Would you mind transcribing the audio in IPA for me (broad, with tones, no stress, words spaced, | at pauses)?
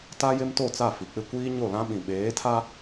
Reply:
ta˦jɪ˦mto˦˨t͡sa˦˨ fi˨k͡pɪ˦ kʷiː˦ɲo˦˨lã˦ɓĩ˨ ɓeː˨˦tʰa˦